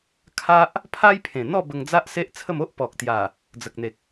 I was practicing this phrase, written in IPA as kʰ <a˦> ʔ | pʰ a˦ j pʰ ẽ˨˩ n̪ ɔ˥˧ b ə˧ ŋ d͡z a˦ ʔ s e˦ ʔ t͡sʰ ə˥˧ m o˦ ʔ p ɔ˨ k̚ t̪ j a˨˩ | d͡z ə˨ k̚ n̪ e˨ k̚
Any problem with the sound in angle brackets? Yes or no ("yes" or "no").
no